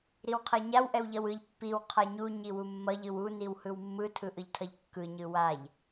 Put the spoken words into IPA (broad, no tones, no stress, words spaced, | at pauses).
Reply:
ɾiwqʰɛɲaw ʔɛwʎʌwɯʎ pːiw qʰaɲu ɲiwumːʌʎ ɯwu niwhɯwmːɯ tʰɯʔɯʎtʰʌʎkːɯ ɲɯwaʎ